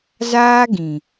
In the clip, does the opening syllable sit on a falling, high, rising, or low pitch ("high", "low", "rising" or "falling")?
high